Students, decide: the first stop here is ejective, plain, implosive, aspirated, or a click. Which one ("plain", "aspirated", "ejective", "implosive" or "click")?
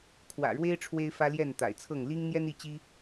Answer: aspirated